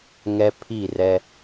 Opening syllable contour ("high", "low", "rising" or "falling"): high